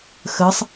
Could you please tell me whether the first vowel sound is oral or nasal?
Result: oral